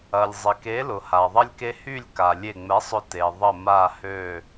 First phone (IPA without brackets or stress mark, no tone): ɐ